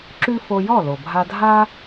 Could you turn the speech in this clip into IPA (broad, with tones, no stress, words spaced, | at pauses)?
ǁʉ˥ fo˧jɔ˥˩ lo˩ bʱa˧dʱa˥